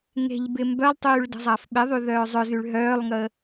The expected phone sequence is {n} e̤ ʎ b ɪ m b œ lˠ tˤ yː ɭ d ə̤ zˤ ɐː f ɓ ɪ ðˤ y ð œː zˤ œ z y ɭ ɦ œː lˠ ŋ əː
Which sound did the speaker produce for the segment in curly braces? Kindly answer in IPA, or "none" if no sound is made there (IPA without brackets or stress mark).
ŋ